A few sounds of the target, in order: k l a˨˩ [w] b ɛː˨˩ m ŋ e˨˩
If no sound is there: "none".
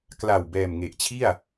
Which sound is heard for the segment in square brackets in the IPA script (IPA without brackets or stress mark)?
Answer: w